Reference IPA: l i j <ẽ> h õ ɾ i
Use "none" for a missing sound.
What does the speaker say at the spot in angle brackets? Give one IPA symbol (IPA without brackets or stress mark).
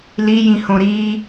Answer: ĩ